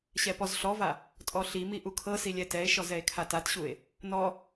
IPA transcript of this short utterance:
ɕɛpɔzɬɔva | tʼɔɬimi ʔukʰɤsi lʲɛtɛe̯ʃɔz ɛe̯kʰatatɕue̯ | nɔ

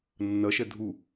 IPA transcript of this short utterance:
nːɐʃɛ dʱu

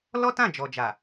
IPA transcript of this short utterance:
lɔ˦tã˦˨d͡ʒɔ˨d͡ʒa˨

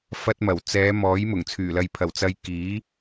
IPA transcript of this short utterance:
fɐ˧t̚mɐ˨˩w t͡sɛː˨˧ mɔː˨˥j mʊ˨˩ŋt͡sʰyː˨˩lɐ˨jpʰɐ˨˩w t͡sɐ˧jkiː˨˥

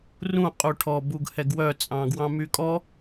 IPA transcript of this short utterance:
rũ qʼuʈʰɔ buɡhɛɡwœ t͡sʼɑ̃ɡwɑ̃mykʼɔ

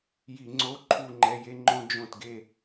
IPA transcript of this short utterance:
ji˧˩˧ŋ͡ǀo˧˥˧ ǃʰu˥˧ŋ͡ǃɛ˧˥˧je˥ ŋ͡ǃõ˥ d͡ʒõ˥˩tɡe˥˧

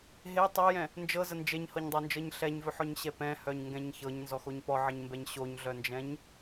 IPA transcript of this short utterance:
ɦe tˤojɛ̃ | nd͡ʒɤzə nd͡ʒeɲhɤɲdˤɤnd͡ʒɤɲ ɬɛɲvɵħɔɲɕɛ pɛ̃hœɲŋɡɛ̃ɲ çɤɲnzɔxoɲ pɔʕəɲmbɛɲ ɕoɲɮœnd͡ʒɛ̃ɲ

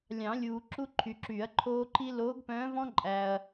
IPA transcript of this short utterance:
lʲɑ̃˨˩˦lʲuː˨ ǁu˥ǃʰy˨ǁyː˨˩˦ɐ̯ ǃʰoː˥ ǃi˥ loː˧˥ɡpœ̃ː˧˥vɔ̃˥ǃʼæ˨ɐ̯

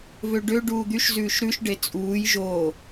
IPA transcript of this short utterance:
vøɖø ɖuːd̪yʃ zʉːʃɾʉʃ ɖet͡sʼuːj ʒo

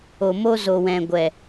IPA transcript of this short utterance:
o˨ mo˧zo˨ wɛ̃˨ɡʷɛ˨

